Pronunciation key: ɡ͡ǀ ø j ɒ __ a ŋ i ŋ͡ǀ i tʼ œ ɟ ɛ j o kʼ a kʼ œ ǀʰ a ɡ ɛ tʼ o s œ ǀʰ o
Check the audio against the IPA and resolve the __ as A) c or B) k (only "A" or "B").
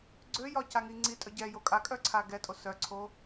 A